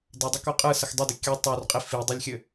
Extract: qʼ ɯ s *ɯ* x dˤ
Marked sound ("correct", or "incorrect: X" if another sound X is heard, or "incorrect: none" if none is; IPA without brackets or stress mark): incorrect: ə